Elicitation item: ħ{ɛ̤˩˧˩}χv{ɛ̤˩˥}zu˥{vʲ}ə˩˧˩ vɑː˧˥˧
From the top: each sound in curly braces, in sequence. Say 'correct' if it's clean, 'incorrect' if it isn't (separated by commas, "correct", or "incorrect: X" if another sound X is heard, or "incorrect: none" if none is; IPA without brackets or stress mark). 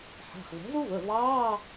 incorrect: æ̤˩˧˩, correct, incorrect: v